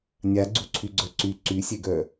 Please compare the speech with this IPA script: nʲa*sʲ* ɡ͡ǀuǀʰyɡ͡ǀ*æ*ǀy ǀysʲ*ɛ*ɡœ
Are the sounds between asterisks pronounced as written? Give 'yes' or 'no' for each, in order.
no, no, yes

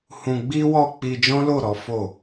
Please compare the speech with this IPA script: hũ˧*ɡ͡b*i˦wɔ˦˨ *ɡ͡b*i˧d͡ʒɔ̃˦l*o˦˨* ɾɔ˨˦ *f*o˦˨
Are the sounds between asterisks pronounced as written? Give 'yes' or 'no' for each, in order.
yes, no, yes, yes

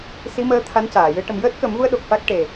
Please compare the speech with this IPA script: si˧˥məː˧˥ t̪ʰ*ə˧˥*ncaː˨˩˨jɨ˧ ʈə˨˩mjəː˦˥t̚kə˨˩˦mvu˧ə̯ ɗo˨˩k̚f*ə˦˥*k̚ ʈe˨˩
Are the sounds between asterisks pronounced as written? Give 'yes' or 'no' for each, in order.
no, no

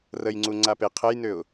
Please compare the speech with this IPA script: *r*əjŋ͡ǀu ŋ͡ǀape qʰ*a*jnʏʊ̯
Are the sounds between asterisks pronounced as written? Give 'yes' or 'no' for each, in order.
yes, no

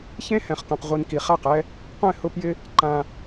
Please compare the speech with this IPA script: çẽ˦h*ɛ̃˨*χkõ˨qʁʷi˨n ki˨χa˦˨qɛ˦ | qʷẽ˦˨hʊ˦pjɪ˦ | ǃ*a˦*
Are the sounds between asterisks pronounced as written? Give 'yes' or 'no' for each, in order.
yes, no

